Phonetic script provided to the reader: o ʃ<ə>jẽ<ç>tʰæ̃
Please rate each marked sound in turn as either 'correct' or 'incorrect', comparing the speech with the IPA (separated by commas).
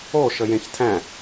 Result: correct, correct